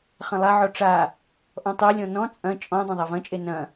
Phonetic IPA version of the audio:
χ ɐ̃ lˠ a ʕ ɔ ʈ͡ʂ a | ʔ ɔ̃ tˤ e lʲ ɔ̃ n ɔ̃ t͡sʼ ɐ̃ t͡ʃʼ ɔ̃ dˤ ɐ̃ ðˤ a v ɐ̃ t͡ʃʼ e n ɐ̃

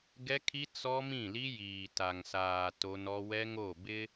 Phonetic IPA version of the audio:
ɡ ɛ˦ kʰ i˦ t͡s ɔ˦ m ĩ˦˨ l i˦ j iː˨ t a˨ ŋ s aː˨ t o˦ n ɔ˦ w ɛ˦ ŋ o˦˨ b ɪ˦

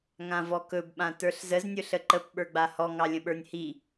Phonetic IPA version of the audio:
ŋ ã v ɔ k ɵ b ɓ ã t ə˞ ɬ z ə z nʲ ɵ ɬ ə ǃ ə p ɓ ə˞ ɡ͡b a h ɔ ŋ ɑ lʲ ə̃ ɓ ə˞ nʲ h i

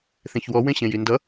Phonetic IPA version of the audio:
θ ẽ ç w ɔ w ẽ ɕ ẽ j i n d ʌ

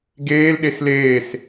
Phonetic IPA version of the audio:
ɡ eː l ɗ e s l eː s

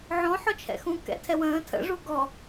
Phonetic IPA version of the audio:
ʕ ɔ̃ ħ ɔ t͡ʃʰ ɛ̰ x ũ k ɛ̰ tʰ ɛ w ə̃ː tʰ ə̰ ʐ u ɡ ɔ

